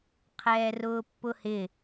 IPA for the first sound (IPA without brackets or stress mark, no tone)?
qʰ